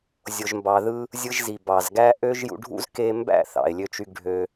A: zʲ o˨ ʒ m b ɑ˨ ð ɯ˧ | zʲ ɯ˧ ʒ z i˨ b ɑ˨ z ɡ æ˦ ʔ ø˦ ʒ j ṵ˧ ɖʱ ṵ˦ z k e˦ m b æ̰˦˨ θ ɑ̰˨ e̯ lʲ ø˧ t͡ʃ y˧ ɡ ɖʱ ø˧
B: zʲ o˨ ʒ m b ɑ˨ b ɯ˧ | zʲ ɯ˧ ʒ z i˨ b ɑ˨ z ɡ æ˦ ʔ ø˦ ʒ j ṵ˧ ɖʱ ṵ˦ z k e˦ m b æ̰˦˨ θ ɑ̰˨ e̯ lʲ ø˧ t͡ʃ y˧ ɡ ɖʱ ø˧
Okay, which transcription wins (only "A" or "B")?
A